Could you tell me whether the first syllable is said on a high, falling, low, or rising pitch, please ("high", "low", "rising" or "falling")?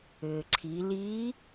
low